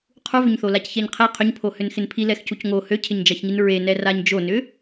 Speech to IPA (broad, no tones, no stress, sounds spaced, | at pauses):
qʰ u v ʏ ɲ θ o l a c ç ɛ ɲ qʰ e qʰ ʏ ɲ pʰ o h ʏ n x ɪ n pʰ i l ɛ x c u c ŋ o h ø cʰ ɪ ɲ d͡ʒ ɑ ç ŋ i n ɹ e n ɛ r a ɲ d͡ʒ o n ʏ